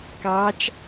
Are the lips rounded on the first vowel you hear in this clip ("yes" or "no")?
no